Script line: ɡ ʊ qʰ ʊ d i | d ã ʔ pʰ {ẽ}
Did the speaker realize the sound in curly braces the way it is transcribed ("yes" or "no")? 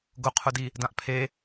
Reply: no